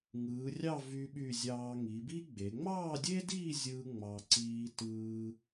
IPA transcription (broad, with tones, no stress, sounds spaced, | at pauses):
ŋ ɯː˩˧ rʲ ɑ˥˧ v y˧ ɓ y˧˩ zʲ ɑː˧ ŋ i˩˧ b i˥ ɡ͡b e˩˧ ŋ͡m ɑː˥˧ dʲ e˥ d iː˥˧ zʲ ɯː˧ ŋ͡m ɑ˧ ǀ iː˧ t ɯː˧